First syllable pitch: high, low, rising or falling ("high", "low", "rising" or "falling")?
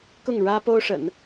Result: falling